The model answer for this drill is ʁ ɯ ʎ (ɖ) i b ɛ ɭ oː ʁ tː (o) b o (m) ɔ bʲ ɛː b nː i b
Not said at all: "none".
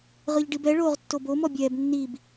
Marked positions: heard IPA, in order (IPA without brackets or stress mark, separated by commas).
ɖ, o, m